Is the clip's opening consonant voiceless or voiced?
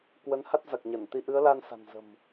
voiceless